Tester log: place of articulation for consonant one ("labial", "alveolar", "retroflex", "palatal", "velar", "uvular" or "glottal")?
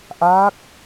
glottal